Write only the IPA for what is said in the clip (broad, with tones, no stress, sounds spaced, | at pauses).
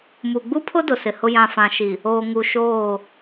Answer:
m u˨ ɡ͡b u˦ pʰ ʊ˦ d ʊ˨ s ɪ˨ h ʊ˦ j ã˨ f ã˨ ʃ i˨ | oː˨ ŋ u˨ ʃ oː˦˨